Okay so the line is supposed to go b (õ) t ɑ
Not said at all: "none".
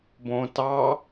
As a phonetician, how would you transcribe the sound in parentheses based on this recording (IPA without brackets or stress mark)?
õ